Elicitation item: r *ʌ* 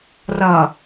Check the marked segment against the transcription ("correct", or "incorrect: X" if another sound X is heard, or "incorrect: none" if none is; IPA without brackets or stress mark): correct